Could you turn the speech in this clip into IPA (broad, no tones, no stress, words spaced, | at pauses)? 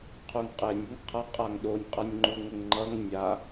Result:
qʰuŋqʼenʲ əŋqʰʌ qʼaŋɗonʲ qʼʌnʲŋ͡ǃuŋəŋŋ͡ǃʌŋ nʲa